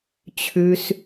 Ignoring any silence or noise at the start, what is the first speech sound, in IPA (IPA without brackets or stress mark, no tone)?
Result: t͡ɕʰ